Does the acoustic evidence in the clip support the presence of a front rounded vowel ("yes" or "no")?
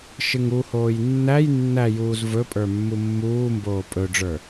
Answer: no